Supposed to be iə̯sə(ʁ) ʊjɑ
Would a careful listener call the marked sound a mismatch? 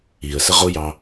no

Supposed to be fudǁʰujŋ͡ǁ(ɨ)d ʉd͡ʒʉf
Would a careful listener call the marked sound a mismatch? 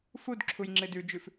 no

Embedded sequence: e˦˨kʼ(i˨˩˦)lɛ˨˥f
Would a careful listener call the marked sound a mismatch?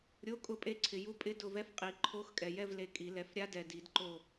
no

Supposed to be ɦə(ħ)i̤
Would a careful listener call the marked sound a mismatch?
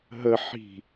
no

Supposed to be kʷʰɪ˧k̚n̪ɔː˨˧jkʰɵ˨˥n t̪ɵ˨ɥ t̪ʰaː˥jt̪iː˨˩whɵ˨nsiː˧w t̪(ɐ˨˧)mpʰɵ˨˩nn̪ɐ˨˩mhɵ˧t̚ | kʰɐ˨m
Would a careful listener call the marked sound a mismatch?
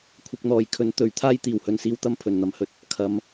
yes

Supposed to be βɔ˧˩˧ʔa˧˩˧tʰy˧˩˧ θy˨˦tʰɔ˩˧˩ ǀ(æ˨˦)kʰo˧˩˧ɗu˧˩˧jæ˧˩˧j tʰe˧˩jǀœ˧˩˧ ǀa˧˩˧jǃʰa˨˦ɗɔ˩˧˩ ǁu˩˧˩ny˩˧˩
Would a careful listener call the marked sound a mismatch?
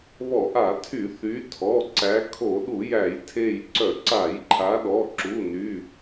no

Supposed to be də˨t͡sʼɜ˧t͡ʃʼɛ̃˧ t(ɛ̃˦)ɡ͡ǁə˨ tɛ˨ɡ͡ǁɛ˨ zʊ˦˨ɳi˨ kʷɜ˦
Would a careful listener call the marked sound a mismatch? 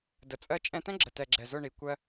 no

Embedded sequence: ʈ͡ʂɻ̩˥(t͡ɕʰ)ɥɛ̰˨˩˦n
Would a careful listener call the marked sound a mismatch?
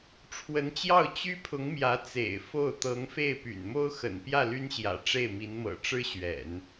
yes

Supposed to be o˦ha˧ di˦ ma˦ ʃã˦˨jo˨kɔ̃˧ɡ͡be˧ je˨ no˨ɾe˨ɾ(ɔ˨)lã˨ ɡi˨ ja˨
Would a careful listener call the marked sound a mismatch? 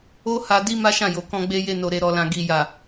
no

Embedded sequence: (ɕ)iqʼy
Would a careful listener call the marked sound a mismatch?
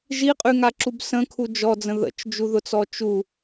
yes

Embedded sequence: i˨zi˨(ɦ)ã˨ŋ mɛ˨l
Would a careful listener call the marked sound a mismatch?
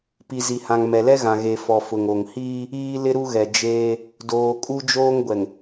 yes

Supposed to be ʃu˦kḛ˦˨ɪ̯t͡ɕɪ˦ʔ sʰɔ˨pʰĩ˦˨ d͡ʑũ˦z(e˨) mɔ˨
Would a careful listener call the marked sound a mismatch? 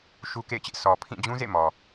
yes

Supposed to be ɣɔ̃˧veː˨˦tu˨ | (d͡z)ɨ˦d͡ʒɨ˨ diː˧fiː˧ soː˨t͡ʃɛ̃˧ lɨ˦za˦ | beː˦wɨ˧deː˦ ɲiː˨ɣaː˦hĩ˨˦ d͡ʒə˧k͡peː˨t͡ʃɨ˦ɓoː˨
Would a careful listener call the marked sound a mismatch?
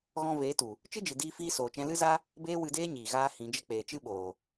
yes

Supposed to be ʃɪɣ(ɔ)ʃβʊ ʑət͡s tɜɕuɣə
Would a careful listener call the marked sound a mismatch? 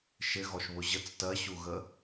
no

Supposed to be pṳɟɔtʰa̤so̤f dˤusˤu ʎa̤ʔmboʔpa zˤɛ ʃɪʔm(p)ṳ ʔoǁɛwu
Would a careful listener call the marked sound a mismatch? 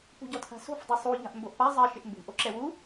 yes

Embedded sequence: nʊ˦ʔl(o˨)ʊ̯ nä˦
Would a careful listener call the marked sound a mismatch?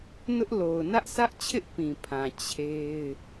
no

